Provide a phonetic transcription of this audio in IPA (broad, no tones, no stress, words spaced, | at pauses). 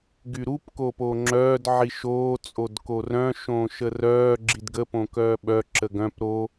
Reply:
ɡyɾup koːpoːŋ͡ǁœːd ʕiʃoː t͡sʼodkorœ̃ ʃõːʃərœː ɡ͡ǁidɡə põkœːɓœ ǁəɡœ̃p ɾo